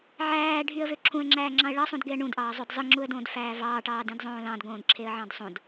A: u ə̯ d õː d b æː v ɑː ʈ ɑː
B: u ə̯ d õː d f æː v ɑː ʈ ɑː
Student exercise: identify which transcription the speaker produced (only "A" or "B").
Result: B